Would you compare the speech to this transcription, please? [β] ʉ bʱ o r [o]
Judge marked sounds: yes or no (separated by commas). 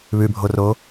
yes, yes